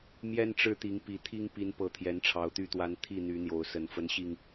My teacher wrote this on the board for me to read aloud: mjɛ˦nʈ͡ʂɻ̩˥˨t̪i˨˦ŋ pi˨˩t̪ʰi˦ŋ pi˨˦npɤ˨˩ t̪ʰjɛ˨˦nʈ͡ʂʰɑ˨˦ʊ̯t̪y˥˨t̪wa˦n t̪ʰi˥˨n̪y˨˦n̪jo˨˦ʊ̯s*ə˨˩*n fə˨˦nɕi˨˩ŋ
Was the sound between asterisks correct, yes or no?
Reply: yes